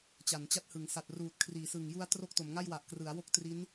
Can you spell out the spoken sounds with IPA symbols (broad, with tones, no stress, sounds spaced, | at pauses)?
t͡ɕ a˩˦ n t͡ɕ a˦˥ t̚ h ɯ˩˦ ŋ s a˨˩ t̚ r uː˨˩ t̚ kʰ r iː˩˦ s ɯ˨˩ ŋ j u˧ a̯ t r o˥˩ k̚ t o˩˦ m ŋ a˥˩ j w a˨˩ ʔ k r ɯ˩˦ a̯ w o˥˩ k̚ t r i˦˥ n